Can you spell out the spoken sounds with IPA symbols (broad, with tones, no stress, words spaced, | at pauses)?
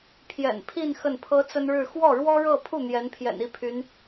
pʰjɛ̰˨˩npʰi˥˧n xə˥˩npʰɤ˥t͡sə˥n ɻɻ̩˥˧ xwɔ˥˩ɻwɔ˥ɻɤ˥˧pʰu˥˩ n̪jɛ˧˥npʰjɛ̰˨˩ni˥˩pʰy˧˥n